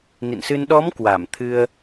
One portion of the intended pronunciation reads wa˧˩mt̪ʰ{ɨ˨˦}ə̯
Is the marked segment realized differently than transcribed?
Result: yes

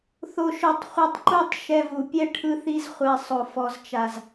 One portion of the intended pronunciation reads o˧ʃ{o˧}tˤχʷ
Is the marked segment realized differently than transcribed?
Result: no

